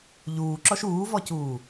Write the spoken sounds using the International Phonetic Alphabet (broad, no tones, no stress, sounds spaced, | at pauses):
ʎ uː ǁ ɔ ʃ uː v ɔ c uː